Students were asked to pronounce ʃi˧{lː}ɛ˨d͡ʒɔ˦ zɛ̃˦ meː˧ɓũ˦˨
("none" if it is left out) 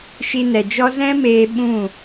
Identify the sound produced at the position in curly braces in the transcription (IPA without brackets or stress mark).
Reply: n